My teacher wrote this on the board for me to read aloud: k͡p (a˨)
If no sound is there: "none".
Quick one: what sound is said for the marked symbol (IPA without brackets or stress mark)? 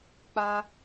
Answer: a˦